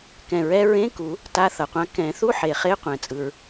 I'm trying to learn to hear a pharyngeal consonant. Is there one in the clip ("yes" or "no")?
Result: yes